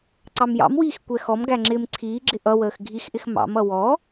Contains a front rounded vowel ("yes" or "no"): no